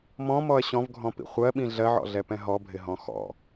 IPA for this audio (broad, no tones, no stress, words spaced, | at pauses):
mɔ̃mɔɐ̯ ɕɔ̃vɡʱɔ̃pḭ χʷɜɓĩ ɮɜʕɔ̰ɮɛpɛ̃ ɦɔbʱɪɦɔ̃ xɔ̰